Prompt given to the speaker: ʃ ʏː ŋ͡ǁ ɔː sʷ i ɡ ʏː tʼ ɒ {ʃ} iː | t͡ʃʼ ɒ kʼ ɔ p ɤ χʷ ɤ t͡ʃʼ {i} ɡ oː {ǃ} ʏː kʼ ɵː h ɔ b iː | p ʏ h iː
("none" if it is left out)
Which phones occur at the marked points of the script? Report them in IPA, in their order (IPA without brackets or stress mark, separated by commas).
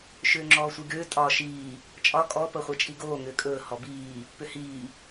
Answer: ʃ, i, ŋ